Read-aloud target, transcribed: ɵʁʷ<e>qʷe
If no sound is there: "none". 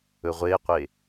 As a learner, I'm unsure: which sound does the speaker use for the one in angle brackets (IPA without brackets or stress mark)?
e